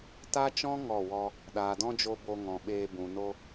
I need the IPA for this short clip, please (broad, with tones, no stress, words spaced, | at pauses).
ta˦t͡ʃɔ̃˦ ŋɔ˦˨wɔ˦ | ɗaː˨dɔ̃˦d͡ʒo˧ bo˧ŋɔ̃˨ɓeː˧ bũ˨no˧